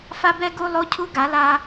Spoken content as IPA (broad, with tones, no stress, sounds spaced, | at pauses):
f a˦ b ɛ˦ ɡ u˧ lˠ o˦ cʰ u˦ ɡ a˨˦ l a˧